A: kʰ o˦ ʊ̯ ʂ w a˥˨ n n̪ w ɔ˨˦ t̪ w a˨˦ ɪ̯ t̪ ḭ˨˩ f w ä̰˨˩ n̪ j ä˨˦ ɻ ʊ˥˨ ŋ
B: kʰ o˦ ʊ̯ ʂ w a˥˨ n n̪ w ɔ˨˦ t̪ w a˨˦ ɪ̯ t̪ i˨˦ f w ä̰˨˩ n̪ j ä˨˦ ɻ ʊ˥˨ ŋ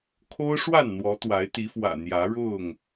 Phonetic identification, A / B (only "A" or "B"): B